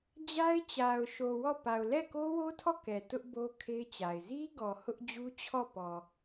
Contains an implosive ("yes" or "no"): no